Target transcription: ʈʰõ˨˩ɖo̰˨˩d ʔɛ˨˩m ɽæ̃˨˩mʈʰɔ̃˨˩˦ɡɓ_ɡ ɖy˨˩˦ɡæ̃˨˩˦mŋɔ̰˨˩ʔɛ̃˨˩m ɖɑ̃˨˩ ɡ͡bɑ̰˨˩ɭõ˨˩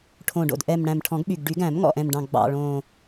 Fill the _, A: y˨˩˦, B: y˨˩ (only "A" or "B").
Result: B